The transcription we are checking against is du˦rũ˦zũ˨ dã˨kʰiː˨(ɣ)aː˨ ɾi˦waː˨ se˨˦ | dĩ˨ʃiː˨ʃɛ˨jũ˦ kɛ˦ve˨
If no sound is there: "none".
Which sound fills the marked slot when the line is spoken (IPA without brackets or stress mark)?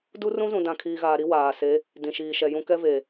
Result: ɣ